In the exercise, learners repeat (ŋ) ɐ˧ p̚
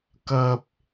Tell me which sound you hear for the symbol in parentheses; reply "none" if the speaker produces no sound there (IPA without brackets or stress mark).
k